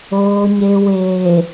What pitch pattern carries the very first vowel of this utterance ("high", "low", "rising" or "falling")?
low